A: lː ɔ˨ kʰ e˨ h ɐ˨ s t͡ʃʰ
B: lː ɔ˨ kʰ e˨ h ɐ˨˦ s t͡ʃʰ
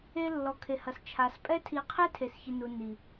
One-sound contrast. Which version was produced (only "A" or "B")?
A